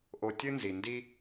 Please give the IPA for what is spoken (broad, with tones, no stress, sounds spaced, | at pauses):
ʔ o˨ tʲ ɨ˦ n z i˩ n d i˦